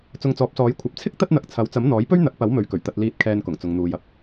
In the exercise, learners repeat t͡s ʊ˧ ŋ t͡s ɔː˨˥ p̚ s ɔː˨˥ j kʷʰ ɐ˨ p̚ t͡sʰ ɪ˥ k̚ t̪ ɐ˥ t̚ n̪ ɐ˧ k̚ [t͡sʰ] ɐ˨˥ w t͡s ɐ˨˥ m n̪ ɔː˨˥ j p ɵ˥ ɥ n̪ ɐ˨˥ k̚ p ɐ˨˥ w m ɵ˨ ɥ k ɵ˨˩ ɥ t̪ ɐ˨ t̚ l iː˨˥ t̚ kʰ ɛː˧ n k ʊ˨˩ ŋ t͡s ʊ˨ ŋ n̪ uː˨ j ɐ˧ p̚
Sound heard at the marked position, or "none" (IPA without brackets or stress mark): t͡sʰ